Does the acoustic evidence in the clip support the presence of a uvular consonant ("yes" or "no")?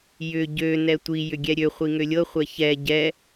yes